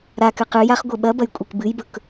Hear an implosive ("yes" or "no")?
yes